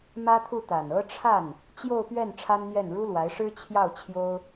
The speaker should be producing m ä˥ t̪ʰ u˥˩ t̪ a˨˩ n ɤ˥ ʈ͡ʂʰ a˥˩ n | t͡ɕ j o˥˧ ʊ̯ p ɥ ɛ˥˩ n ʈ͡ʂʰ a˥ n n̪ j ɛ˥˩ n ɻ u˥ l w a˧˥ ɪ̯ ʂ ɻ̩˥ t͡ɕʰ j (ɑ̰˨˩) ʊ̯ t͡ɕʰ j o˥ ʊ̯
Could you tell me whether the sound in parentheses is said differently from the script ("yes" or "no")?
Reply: yes